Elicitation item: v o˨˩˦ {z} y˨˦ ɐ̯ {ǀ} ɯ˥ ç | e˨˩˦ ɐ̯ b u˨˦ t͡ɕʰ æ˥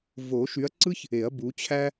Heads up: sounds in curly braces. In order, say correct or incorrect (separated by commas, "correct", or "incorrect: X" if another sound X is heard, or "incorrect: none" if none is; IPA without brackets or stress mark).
incorrect: ʃ, correct